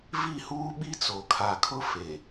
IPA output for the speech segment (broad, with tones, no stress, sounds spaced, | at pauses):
v i˦˨ h uː˦ ɓ i˦ t͡s o˨ kʰ a˨ kʰ ʊ˦ f e˨